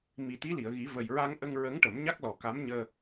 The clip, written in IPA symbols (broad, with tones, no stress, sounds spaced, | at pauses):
m i˨˩ t̪ i˧˥ l i˨˩˨ ə̯ ɣ i˨˩˦ v ə˨˩ j ɹ a˧ ŋ ʔ ə˧ ŋ ɹ ə˧˥ ŋ ʈ ə˨˩˦ m ɲ a˦˥ k̚ l ɔ˨˩ k a˧˥ m ɲ əː˧